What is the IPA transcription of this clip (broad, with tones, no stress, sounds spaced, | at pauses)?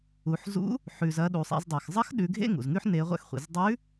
u˩˧ ħ z ṵ˧˥ | ħ ʉ˩ z ɐ˩˧ ɗ u˩ sˤ ḛ˩˧ z dˤ e˩ x zˤ ɐ˧˥ x ɗ ʉ˩˧ ɡʱ ḛ˥ ŋ ṵ˩ z ŋ ʉ˥ ħ n e˧˥ ʁʷ ɛ̰˥ x χʷ ḭ˩˧ z dˤ ʉ˧˥